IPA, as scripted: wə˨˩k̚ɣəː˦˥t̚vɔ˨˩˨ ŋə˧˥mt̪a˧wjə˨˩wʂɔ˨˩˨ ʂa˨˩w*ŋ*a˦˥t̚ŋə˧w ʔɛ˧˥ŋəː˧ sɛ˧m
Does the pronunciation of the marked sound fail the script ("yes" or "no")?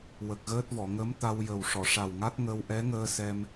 no